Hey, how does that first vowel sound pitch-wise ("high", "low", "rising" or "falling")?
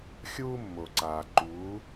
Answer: high